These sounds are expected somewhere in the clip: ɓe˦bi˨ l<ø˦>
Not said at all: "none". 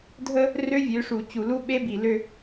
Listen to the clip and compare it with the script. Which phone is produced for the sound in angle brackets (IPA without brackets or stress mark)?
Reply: ø˦